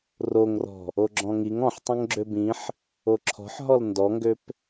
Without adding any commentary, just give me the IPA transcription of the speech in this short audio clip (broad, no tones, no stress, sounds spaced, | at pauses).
r o ŋ r ɔ̤ | o ɡ͡ǁ ɔ̃ ŋ i ŋ ɔ̃ ħ tˤ õ ŋ ɡ͡ǁ ø b ĩ ħ | o ǁʰ ɔ̤ ħ ɦ ɔ l n d ɔ ŋ ɡ ø p